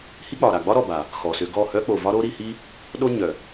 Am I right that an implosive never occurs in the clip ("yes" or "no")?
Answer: no